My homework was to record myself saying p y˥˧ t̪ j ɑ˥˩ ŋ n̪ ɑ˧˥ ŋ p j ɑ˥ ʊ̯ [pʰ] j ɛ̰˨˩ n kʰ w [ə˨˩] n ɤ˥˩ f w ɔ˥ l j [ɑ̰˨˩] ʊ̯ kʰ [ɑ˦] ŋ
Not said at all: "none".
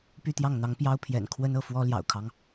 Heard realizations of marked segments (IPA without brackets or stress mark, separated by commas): pʰ, ə˥, ɑ̰˨˩, ɑ˦